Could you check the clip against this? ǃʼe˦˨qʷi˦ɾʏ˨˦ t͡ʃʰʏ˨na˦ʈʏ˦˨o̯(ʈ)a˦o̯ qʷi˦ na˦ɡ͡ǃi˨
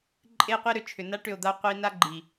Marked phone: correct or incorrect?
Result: incorrect